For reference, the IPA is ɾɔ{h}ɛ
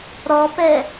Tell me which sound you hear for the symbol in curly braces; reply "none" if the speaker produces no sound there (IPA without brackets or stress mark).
p